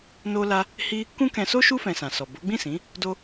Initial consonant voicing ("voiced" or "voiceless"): voiced